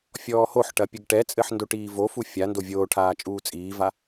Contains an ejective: yes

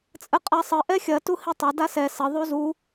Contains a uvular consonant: yes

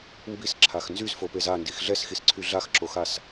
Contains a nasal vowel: no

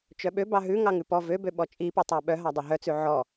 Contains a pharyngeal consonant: yes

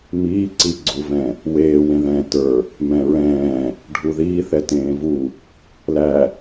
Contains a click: yes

